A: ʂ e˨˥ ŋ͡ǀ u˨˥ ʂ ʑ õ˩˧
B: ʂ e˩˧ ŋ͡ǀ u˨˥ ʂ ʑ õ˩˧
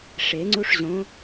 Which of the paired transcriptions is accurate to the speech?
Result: B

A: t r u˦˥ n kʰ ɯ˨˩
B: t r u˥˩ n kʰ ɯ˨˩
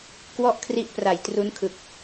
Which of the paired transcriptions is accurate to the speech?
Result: A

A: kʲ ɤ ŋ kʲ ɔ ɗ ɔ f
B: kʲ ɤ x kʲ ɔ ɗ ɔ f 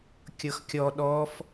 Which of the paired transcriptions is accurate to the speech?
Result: B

